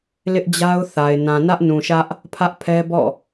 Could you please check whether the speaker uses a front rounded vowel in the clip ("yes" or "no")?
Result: no